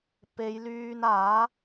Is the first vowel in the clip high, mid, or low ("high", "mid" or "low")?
mid